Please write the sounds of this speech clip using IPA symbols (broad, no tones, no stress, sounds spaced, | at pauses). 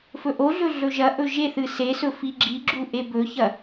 f ɵ ʔ o ɮ ɵ ɮ ɵ ʒ ɐ ʔ ɵ ʒ e θ ɨ s e s ɵ f i ɡ͡ǁ i ɡ͡ǁ u ʔ e b ɵ ç ɐ